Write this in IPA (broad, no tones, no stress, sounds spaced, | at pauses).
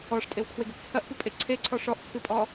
ɔ ʂ tʼ e w kʰ w e ɡ ɘ p t͡sʰ ɐ ʔ p ɨ pʼ e ǀʰ e ǀʰ ɔ ʂ ɔ ʔ t͡sʰ ɨ pʼ ɔ